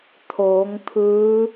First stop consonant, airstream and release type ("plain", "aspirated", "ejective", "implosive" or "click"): aspirated